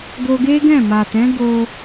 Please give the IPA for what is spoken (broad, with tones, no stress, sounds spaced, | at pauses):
ɡ o˧ ɡ e˦ ɡ ɛ̃˦˨ m a˨ t ɛ̃˨˦ ɡ o˧